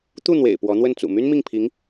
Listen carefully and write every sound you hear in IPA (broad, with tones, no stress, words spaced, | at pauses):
t̪u˥˩n̪wḛ˨˩ɪ̯ pwɔ˧˥n̪wə˥˩nt͡sṵ˨˩ my˥n mi˥˩ŋpʰi˧˥ŋ